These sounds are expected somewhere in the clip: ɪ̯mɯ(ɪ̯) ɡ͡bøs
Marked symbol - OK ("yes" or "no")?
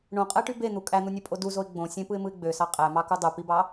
yes